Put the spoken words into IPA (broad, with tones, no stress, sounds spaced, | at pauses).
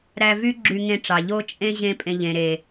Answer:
ɾ æ˧ v y˦ ɡ͡ǁ y˧ ŋ ẽ˧ ʈ͡ʂ ɑ˨ ʎ o˦ t͡ʃʼ ẽ˦ ʑ ẽ˦ pʼ ẽ˧ ʎ ẽ˨ ɾ e˨